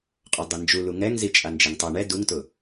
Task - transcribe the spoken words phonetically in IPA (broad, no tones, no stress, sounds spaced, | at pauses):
qʼ ɔ dˤ e n d͡ʒ u l u ŋ ɛ ŋ z i t͡ʃʼ a n d͡ʒ e ŋ tˤ a ɳ ɛ d u ŋ t ʊ